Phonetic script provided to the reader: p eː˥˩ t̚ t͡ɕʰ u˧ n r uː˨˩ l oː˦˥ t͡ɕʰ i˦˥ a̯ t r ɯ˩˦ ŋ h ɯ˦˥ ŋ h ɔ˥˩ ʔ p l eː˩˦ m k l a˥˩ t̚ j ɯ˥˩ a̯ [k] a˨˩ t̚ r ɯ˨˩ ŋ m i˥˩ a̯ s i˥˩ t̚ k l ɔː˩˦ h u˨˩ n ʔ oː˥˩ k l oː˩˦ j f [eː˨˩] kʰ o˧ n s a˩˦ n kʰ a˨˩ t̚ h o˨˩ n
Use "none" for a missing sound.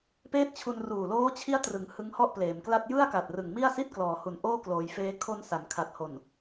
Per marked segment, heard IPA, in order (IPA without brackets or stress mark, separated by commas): k, eː˦˥